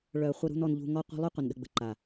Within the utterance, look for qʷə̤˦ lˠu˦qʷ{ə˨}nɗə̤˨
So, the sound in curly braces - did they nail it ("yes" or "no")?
yes